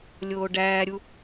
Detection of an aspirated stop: absent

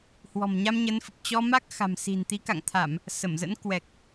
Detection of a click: absent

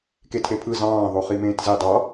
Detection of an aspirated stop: present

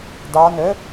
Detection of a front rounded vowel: present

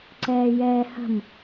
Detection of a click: present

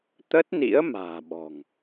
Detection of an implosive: present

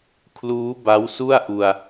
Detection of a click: absent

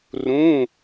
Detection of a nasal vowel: present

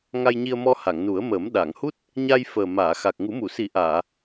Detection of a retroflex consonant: absent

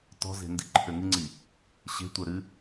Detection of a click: present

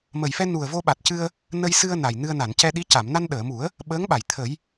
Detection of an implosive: present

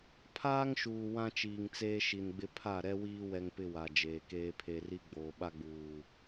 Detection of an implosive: present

